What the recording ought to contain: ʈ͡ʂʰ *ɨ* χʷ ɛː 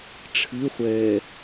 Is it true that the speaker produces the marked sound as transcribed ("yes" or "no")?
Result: yes